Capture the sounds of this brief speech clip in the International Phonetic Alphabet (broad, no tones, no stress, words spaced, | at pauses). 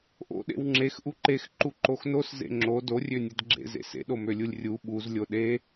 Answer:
ʔo̰ɗḛw ŋ͡ǁex ʔuǃexǃu ǃoxnos zḛŋ͡ǁo dorʲønʲed ɡ͡ǁḛzḛ sḛɗomølʲulʲ rʲu ɓuz lʲoɗe